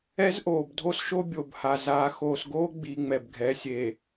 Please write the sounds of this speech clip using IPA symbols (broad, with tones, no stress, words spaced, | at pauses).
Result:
ɛ˦zʔoː˨bdʱo˦sʃo˦ bʲo˨bha˨ zaː˨xoː˨sɡoː˦ ɡ͡bi˨ ŋ͡mɛ˨bɡʱɛ˨˦ sʲe˨